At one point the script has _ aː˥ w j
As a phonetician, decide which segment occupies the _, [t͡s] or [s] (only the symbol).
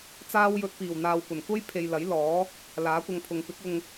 t͡s